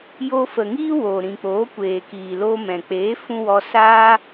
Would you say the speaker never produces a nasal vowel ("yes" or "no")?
no